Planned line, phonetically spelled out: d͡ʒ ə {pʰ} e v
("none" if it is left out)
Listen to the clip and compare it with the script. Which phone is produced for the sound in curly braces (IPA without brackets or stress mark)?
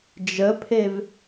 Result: pʰ